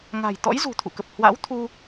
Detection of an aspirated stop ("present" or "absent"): present